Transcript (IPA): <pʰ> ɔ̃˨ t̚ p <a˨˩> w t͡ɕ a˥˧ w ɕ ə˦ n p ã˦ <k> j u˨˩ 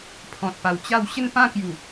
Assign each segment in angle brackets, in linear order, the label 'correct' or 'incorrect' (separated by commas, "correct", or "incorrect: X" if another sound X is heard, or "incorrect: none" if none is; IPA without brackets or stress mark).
correct, correct, correct